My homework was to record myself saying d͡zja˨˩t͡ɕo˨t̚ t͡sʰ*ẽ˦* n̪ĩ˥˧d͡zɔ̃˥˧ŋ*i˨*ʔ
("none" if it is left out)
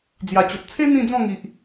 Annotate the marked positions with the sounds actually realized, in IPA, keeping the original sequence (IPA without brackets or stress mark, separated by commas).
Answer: e˦, i˨